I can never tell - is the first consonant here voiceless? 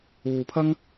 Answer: yes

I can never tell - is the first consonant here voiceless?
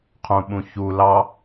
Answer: yes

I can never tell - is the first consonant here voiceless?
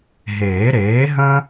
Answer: no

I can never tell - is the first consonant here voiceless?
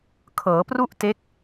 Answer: yes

